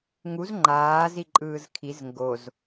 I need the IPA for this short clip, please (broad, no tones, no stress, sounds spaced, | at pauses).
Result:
ŋ u z ŋ͡ǃ aː z i ǃʼ ɯː z kʰ i z ŋ ɡ o z